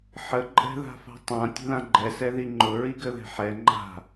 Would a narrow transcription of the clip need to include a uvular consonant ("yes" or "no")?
no